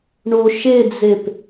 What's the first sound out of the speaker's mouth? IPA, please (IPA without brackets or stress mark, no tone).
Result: ɳ